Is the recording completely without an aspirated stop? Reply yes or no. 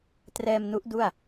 yes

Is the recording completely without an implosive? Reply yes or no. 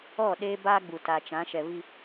no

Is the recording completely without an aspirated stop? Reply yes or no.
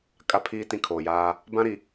no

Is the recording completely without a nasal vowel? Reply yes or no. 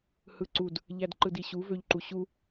yes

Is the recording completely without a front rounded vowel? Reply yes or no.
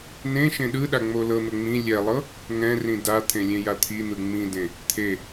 yes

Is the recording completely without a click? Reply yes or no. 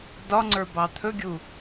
no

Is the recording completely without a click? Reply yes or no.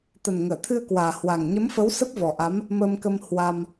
yes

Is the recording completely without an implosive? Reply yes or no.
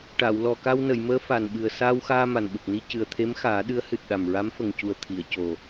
no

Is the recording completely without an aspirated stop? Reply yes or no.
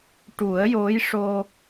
yes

